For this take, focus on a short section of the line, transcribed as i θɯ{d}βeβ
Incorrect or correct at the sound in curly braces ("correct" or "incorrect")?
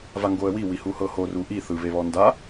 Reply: incorrect